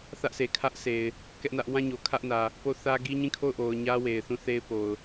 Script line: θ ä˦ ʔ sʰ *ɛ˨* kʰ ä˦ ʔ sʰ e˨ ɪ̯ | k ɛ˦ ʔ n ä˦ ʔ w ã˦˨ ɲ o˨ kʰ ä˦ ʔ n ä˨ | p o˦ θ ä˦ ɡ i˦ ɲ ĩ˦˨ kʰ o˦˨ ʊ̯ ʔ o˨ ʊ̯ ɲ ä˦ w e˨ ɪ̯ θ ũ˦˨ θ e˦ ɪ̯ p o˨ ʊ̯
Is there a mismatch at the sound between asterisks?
yes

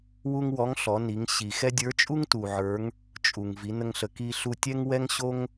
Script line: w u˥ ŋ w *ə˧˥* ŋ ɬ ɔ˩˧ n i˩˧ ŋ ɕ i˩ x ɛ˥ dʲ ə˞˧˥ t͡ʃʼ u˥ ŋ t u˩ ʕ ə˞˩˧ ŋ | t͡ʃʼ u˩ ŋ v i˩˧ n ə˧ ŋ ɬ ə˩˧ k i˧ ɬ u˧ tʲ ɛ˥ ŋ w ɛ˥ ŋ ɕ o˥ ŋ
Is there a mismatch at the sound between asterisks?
yes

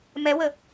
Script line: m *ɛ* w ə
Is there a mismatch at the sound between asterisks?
no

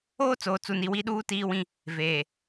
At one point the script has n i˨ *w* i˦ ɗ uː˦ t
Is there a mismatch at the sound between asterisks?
no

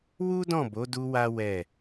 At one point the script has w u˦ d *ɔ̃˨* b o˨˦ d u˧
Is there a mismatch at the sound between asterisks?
yes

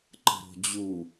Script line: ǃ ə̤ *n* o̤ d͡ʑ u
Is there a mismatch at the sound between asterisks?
yes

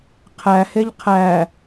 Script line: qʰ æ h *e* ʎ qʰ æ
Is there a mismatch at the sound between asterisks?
no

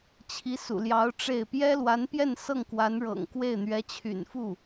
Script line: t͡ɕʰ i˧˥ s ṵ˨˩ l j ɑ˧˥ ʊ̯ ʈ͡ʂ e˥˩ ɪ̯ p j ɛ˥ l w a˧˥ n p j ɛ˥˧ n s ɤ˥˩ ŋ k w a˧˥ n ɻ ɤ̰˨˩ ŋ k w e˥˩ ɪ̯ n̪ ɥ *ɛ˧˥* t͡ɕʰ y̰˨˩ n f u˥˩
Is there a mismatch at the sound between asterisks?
no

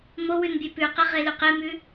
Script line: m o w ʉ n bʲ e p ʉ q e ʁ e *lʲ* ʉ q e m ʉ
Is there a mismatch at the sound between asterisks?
yes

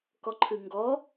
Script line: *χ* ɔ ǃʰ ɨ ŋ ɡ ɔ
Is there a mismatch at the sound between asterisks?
yes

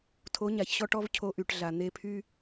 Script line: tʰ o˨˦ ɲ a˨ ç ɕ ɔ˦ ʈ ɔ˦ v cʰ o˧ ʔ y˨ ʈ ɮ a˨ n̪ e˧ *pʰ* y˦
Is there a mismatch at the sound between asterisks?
no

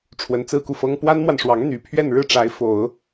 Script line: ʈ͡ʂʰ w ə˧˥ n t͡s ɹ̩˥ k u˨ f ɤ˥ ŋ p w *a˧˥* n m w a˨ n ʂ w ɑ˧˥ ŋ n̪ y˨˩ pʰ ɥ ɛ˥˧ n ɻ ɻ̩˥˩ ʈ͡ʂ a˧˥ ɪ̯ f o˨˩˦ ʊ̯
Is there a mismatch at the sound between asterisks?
yes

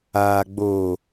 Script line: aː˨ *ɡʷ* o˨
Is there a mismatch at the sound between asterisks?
yes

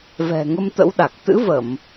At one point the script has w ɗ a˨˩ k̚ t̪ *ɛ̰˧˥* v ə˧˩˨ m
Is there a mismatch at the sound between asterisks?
yes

